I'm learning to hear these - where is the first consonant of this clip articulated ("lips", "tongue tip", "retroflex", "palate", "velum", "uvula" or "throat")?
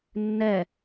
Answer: tongue tip